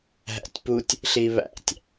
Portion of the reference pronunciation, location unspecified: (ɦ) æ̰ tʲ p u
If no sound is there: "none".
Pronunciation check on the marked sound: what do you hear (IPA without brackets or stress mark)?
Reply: ɦ